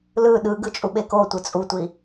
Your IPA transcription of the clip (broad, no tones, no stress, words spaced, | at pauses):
lɯ ɗɯɡɯ t͡ʃʼuɓekotʷɯ t͡sʼutʷi